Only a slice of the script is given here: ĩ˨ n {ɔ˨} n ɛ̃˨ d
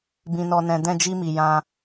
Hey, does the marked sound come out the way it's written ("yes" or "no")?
yes